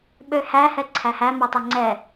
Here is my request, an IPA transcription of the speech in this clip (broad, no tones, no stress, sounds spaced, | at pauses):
ɓ ø h æ h ɛ ǀʰ æ h æ m œ tˤ ɛ ŋ͡ǀ ɛ